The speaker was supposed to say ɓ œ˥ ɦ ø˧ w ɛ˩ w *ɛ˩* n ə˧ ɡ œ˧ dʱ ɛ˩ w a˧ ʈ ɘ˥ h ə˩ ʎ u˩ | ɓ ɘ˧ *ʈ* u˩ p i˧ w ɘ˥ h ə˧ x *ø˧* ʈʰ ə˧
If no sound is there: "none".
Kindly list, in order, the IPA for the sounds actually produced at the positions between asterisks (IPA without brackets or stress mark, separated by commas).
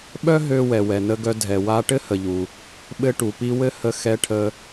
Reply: ɛ˩, ʈ, ɛ˧